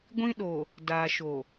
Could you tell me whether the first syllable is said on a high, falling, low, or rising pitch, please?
high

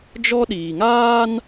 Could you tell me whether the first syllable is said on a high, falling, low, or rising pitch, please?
high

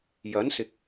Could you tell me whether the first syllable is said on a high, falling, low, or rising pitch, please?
rising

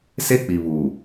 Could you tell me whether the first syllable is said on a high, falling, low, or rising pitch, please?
high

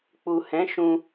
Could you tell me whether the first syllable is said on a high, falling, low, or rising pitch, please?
low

